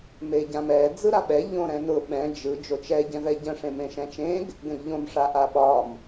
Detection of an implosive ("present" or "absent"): present